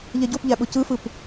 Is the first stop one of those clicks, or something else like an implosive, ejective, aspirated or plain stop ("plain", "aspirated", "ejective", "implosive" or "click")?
plain